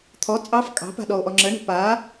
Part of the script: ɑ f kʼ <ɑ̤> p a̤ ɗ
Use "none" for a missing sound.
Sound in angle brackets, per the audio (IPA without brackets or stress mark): ɑ̤